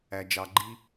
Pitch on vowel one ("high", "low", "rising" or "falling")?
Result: low